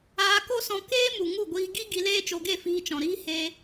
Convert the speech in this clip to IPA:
aː˧ k o˦ s ɔ̃˧ k eː˦ m u˨ ŋ u˦˨ ɡʷ iː˧ ɡ i˦ ɡ i˧ l eː˦ t͡ʃ o˧ ɡ e˦˨ f iː˧ t͡ʃ ɔ̃˨ ɾ iː˦ h eː˧

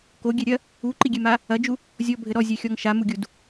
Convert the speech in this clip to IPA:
k o ɡʲ ɛ ɾʲ ɐ | u ǃ i ɡʲ ɛ m a | ɐ d͡ʒ u | zʲ ɔ bʱ ɘ ɾ ɔ zʲ ɛ xʲ ɔ ŋ ʃ a m u ɡʲ u d

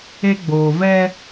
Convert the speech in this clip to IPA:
e˦ ɡ͡b oː˨ v ɛ˦

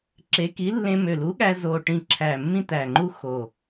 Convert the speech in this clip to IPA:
ǁ e˨˥ k i˨˥ lː ẽ˧ m ø˨˩ l u˨˥ ɠ æ˧ z o˨˩ ʈ ĩ˨˩ ǁʰ æ˨˩ mː ĩ˧ t̪ æ˨˩ ŋ͡ǃ u˧ x o˨˩

